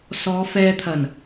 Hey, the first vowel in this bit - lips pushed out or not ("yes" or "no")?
yes